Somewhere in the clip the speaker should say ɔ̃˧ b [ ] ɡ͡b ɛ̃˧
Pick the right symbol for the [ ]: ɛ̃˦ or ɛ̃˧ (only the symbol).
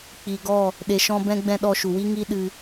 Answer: ɛ̃˧